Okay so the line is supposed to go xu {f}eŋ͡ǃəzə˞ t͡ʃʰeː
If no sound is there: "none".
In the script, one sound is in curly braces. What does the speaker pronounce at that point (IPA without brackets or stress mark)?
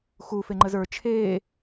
f